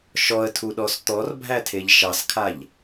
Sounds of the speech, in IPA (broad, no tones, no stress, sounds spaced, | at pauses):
ʃ ɔ ə̯ tʰ u ɗ ɔ s t̪ ɔ r bʱ æ tʰ e ʎ ʃ ɑ s kʰ a ʎ